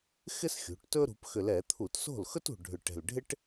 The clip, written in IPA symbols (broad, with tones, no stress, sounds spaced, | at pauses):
x ɪ˥ s xʲ ṳ˩˧ ʈ t ɵ˥ ɾ ṳ˩˧ p x ʏ˨˩ l ɛ˧˩˧ t̪ʰ u˧˩˧ t s o̤˥˩ l x ɵ˥ t ṳ˨˩ ɖʱ ʏ˨˩ ʈ ɛ̤˨˩ l ɖʱ ɪ˥ ʈ